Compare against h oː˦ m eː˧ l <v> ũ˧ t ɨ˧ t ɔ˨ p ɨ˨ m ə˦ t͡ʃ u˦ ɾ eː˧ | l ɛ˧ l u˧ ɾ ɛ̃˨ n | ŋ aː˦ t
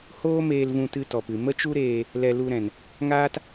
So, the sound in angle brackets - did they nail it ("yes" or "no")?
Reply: yes